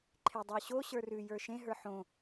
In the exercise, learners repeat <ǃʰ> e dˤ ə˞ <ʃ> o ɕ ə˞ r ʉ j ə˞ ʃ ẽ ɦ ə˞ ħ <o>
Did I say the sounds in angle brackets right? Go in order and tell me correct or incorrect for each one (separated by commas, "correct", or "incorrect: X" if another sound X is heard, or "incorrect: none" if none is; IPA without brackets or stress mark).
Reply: correct, incorrect: ɕ, incorrect: õ